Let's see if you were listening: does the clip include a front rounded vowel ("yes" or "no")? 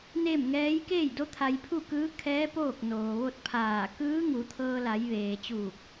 no